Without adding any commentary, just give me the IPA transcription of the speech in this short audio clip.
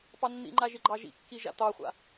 p ɑ nː ḭ ŋ͡ǃ a ʒ ɪ ɡ͡ǃ ɑ ʒ ḭ kː i ʒ a̰ t̪ ɑ χʷ a̰

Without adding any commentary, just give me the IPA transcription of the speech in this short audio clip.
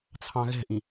t͡sʰ ɑ̃ ɣ ɛ̤ ʔ ĩ

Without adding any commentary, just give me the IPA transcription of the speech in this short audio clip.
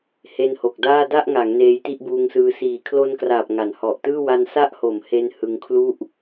h e˦˥ n h o˨˩ k̚ d aː˥˩ d a˥˩ ʔ ŋ a˩˦ ŋ n eː˦˥ j t i˥˩ ʔ b uː˧ ŋ s ɯː˧ s iː˨˩ kʰ l o˧ n k r aː˨˩ p̚ ŋ a˩˦ n h ɔ˨˩ ʔ t ɯː˥˩ w a˧ n s a˦˥ ʔ h o˩˦ m h e˧ n h ɯ˧ ŋ kʰ l u˥˩ ʔ

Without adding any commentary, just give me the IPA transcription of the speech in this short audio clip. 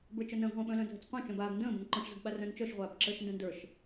b ə˞ t͡ʃ œ n ə̃ː ɡ ʁʷ ə̃ː ɓ œ̃ l œ̃ dʱ ə t͡s qʷ œ̃ t͡ʃ œ̃ b aː ɡ n d ə̃ː b ə̃ n ǃ ɔ̃ ʃ z ə ɡ ɓ a r œ̃ n t͡ʃ œ ʃ ʁʷ aː b ǁ əː ʃ n d œ̃ n d ə˞ ʃ

